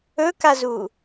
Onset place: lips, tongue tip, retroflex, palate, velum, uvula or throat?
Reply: velum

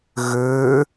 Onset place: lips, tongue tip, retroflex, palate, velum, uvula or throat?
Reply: velum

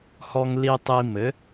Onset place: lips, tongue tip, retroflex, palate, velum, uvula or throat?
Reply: throat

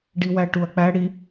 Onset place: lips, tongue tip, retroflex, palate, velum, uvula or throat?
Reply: retroflex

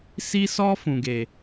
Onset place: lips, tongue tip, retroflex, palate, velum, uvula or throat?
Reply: tongue tip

